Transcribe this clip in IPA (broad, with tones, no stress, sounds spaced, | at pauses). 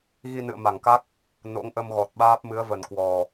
ɣ i˧ n ɨ̰˧˨ ə̯ m a˧˩ ŋ k a˦˥ k̚ | n o̰˧˥ ŋ ʔ ə˧ m ɣ ɔ˨˩ t̚ ɓ aː˦˥ p̚ m ɨ˨˦ ə̯ v ə˨˩ n k w ɔ˨˩